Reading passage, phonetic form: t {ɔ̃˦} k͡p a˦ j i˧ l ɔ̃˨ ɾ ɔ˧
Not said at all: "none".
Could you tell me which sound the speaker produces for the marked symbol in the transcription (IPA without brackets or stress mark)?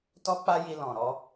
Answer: ɔ˦